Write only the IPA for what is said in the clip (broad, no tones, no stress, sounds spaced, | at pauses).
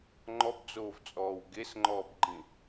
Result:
ŋ͡ǃ ɔ b d͡z oː v t͡sʼ ɔː w ɡ e s ŋ͡ǃ ɔː b ɡ͡ǃ ĩ